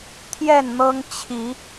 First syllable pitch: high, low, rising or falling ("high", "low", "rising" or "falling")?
falling